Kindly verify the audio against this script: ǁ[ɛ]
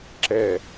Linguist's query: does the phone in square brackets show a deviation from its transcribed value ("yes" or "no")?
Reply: no